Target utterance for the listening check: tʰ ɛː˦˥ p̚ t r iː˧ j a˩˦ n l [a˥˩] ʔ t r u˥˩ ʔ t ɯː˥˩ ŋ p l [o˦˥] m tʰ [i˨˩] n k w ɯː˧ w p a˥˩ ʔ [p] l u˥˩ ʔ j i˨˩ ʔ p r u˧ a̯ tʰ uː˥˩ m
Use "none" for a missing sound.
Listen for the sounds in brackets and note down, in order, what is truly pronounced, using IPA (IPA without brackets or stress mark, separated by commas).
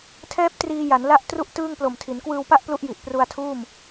a˥˩, o˨˩, i˩˦, p